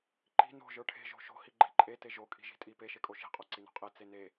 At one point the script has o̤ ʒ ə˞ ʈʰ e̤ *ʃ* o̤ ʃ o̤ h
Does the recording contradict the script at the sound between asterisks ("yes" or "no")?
yes